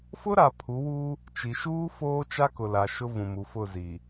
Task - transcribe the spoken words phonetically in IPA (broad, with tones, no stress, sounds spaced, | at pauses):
f ʊ˦ ɾ a˨ pʰ u˨˦ w u˦ | t͡ʃ i˨ ʃ uː˦ f oː˦ t͡ʃ a˦ k ʊ˨ l a˨ ʃ ʊ˦ v ũ˨ m u˨ f ʊ˦˨ z i˨